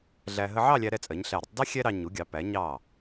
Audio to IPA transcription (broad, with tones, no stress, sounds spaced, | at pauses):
ɮ æ˧ ɦ ə˧ ʕ ɑ˥˧ lʲ æ˧ ɾ ɛ˧ t͡sʼ ɜ˩˧ ɲ ɬ æ˧˩ ɾʲ ə˥ tˤ d ɛ˥ xʲ ɛ˥ ɾ ɑ˧ ɲ u˩˧ ɡʲ ɑ˩˧ p æ˩˧ ɲ ɑ˧˩